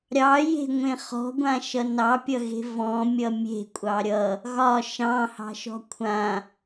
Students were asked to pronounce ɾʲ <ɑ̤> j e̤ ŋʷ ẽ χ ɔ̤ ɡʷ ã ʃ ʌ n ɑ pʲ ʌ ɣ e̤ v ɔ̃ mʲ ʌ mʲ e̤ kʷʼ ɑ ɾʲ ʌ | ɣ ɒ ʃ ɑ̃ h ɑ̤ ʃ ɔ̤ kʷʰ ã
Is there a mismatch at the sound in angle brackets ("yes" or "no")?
yes